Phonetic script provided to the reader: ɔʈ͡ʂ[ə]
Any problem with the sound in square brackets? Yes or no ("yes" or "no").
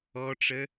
no